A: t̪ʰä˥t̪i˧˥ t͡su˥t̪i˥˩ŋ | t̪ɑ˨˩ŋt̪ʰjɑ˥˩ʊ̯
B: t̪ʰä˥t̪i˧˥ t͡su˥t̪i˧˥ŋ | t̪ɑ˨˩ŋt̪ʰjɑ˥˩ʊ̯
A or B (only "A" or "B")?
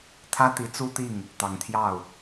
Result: A